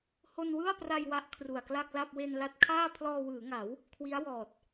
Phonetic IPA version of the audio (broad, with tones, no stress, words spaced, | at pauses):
ho˧nwɯ˥˩a̯pra˧j wa˦˥ʔ kʰru˨˩a̯kla˥˩k̚la˥˩p̚ we˧nla˦˥t̚kʰaː˥˩ pʰlɔː˧wɯː˩˦ŋa˩˦w | kʰwi˦˥a̯wɔː˨˩t̚